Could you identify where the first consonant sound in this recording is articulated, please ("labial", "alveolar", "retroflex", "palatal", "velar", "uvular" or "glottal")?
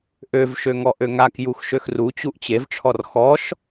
glottal